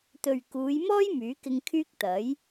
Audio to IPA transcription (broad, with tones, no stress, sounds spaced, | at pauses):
t̪ ɵ˨ ɥ k uː˨˧ j m ɔː˥ j m yː˨˥ k ɪ˧ ŋ kʰ yː˥ k̚ t̪ ɐ˨˥ j